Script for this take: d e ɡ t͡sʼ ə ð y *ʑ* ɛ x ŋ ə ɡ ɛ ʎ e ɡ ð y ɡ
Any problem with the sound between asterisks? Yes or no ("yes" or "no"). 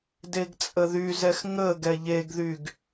yes